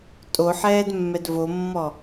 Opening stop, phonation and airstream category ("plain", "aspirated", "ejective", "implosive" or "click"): ejective